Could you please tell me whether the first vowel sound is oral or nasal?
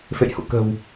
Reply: oral